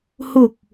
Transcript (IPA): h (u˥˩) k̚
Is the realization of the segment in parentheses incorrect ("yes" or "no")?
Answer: yes